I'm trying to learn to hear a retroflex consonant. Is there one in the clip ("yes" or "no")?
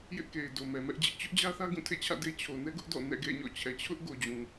no